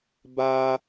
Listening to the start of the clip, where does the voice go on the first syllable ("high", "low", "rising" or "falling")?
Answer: high